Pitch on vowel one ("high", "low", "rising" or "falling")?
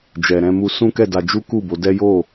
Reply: low